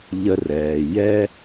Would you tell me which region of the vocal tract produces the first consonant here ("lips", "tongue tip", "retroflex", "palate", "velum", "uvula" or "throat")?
palate